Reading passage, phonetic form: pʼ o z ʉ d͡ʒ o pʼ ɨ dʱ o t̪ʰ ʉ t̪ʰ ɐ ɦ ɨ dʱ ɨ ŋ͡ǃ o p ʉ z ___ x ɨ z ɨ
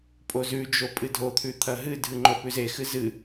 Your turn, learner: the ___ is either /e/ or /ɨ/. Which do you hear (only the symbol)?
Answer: e